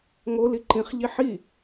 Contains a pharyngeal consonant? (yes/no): yes